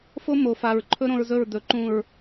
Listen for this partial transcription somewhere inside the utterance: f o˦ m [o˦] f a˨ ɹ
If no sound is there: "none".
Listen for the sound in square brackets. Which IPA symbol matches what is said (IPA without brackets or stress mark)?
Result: o˨